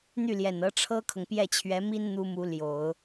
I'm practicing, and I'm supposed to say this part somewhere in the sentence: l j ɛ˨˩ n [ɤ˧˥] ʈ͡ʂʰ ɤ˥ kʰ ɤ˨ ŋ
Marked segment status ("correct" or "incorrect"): correct